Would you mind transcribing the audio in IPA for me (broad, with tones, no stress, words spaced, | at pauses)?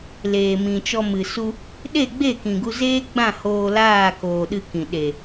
leː˨mĩ˨t͡ʃɔ˧ mɨ˨su˧ | ɗe˦˨ɡ͡be˦˨kĩ˨ɡu˧ zeː˦ɡ͡bã˦˨ hoː˧laː˦˨koː˨ ɗɨ˧kĩ˨ ɗe˨